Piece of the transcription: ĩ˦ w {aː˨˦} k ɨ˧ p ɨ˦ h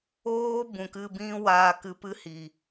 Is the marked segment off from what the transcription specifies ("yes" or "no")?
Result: yes